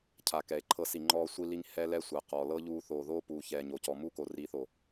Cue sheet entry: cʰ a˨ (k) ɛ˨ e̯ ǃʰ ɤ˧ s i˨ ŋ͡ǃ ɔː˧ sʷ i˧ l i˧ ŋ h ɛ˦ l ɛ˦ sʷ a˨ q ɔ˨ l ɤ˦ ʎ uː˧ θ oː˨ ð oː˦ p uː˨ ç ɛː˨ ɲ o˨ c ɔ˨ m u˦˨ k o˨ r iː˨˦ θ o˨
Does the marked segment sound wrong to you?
no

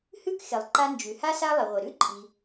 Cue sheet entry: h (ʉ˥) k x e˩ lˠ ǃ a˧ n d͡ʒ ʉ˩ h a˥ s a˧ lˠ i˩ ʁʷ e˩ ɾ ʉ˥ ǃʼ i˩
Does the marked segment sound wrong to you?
no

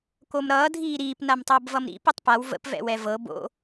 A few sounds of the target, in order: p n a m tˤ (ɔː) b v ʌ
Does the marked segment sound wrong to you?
yes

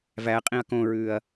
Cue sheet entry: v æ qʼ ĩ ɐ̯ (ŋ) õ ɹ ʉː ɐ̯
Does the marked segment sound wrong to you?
yes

